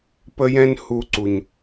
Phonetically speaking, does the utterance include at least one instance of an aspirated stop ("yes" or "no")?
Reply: no